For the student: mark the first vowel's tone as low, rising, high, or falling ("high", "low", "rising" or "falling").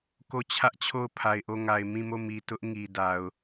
falling